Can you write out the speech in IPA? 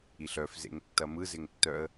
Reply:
iɬœf zḛŋtːɐmɯ zɪŋtːœə̯

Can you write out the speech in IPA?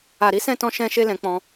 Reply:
a˨ɾi˨˦sɛ̃˦˨tɔ̃˧ ʃɛ̃˦ʃe˦lɛ̃˧k͡pɔ̃˧

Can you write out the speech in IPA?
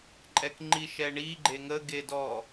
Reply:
ǃʼɛkŋ͡ǃiʃɛɳi ɡ͡ǃeŋə ɡedɔ

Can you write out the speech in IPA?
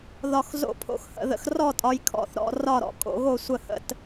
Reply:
ðɒ˨x zo̰˦˨pʰo̰˨x hə̰˨ðə̰˨xrɔ˦˨tʼɒ˨j kʰɔ̰˨θɾɔ̰˨ rɒ˦˨ɾɔ̰˨kʼo̰˨ ɣo˦˨ sʷə˦˨hə̰˦˨t

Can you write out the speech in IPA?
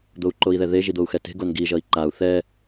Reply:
d̪ou̯ǃoi̯ðɛðe ʒid̪ou̯xɛte̤ ɡonɡi ʒʌi̯ǃau̯ θɛ

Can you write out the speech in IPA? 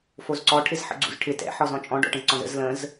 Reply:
fozǀɔ ʈʰɪzħə̰ɡ͡ǀṵzʈʰɪ tɛ̰ ħɔzɔ̃t͡ʃʼɔ̃ ɖɔ̰ʈə̃zǀɔ̃zə̰z lə̃z

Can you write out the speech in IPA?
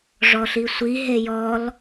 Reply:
ʐɔɬisʷi ɦejɔl

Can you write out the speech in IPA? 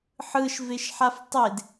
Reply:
ħɯʃveʃħaf tˤed

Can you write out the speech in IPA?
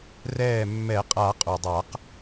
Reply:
rɛː˧˩mːɛ˨˩˦ qʼa˨˩˦qʼu˩dˤa˨˩˦q

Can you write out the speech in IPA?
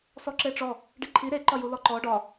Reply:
sɔǁeʈ͡ʂɔ | ɖiǃʰi ɾe ǃɒjulɔǃɔ ɖɒ

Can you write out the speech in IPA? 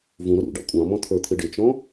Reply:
vũɾʊ ɾṵɖɑ̰ kʷʼɑ̃mɔ̃ t̪ʰə˞t̪ʰɪɖɪt͡ʃɔ̃

